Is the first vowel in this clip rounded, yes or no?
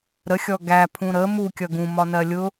no